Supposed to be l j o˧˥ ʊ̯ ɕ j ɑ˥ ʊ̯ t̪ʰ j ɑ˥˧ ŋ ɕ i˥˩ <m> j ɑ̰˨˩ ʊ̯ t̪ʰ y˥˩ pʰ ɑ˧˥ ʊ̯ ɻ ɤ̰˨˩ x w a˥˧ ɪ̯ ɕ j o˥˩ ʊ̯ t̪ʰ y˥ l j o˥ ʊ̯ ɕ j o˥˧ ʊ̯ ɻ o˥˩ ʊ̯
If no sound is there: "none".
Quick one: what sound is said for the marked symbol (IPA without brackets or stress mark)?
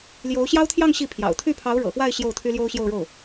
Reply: pʰ